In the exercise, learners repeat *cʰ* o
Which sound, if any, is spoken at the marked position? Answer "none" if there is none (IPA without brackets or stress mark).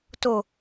t